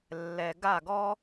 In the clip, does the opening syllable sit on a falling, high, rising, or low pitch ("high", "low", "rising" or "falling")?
low